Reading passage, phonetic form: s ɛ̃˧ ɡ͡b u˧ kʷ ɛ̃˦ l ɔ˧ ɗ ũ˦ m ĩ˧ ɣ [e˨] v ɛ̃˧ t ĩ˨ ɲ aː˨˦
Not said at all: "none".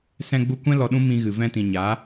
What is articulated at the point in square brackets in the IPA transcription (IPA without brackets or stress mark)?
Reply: ɨ˨